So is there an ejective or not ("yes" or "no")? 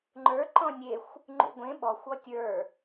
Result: no